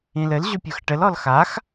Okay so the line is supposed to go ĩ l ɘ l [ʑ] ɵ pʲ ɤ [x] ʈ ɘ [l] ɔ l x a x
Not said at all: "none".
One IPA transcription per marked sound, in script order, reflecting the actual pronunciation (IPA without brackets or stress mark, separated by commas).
ʑ, x, l